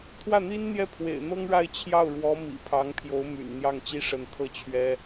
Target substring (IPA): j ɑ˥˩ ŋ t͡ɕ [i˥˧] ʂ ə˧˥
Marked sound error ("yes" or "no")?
yes